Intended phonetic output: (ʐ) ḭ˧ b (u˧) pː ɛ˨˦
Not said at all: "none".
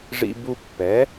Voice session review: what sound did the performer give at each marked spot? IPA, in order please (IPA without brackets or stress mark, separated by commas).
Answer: ʐ, u˧